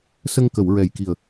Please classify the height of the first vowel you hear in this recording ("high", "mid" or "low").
mid